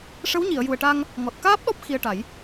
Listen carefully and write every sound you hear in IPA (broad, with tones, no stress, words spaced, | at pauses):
ʂə˧˥wɲi˨˩˨ə̯ju˨˩ə̯ʈa˧ŋ | ŋɔ˨˩t̚ kaː˦˥p̚ɗɔ˦˥p̚ xi˧ə̯ʈa˨˩˦j